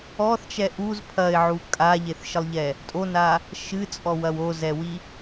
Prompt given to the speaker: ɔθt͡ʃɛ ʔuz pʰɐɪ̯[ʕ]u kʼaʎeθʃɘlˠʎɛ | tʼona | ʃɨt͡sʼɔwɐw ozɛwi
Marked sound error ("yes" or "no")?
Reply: no